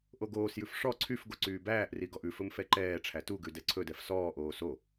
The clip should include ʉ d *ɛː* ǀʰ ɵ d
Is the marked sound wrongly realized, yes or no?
yes